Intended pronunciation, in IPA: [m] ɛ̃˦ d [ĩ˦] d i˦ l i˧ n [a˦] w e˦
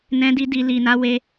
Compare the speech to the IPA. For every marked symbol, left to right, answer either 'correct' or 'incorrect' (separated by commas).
incorrect, incorrect, correct